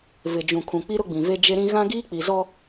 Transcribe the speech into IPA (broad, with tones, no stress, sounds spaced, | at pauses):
v ɪ˨ d͡ʒ ũ˨ kʰ ũ˨ k͡p i˦ ɾ ʊ˦ ɡ͡b ĩ˨ v e˦ d͡ʒ e˦ ɾ ĩ˦ ɣ ã˦ ɡ iː˦ k͡p i˨ z ɔ˦